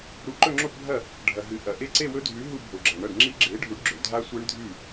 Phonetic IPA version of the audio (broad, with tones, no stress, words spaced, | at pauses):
ɾu˨˥ǃɵ˥˧ŋ͡ǁo˥˧pbʱɐ˥˩ | ɖʱɐ˩ɦɨ˩ ʔɐ˩ʔe˦˥ ǀe˥˧wɵ˦˥dʱʉ˨˥ ɦu˥˧bʱo˩ɡ͡ǁɐ˩ɳɐ˥˩ɖ ŋ͡ǁi˦˥ɡ͡ǁe˨˥ɖʱu˨˥ɖ ɡ͡ǁɵ˩dʱa˦˥sʷe˦˥ɳ dʱʉ˥˩